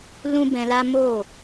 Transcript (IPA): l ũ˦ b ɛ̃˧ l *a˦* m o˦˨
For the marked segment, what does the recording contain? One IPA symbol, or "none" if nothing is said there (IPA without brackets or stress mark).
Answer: a˦